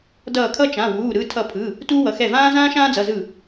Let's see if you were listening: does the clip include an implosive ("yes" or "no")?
no